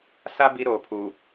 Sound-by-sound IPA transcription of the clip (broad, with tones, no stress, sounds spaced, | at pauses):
s a˦ b i˦ ɾ oː˨ pʰ u˨